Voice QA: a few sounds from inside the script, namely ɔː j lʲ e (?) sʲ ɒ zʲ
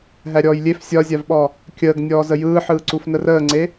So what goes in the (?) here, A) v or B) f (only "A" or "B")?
B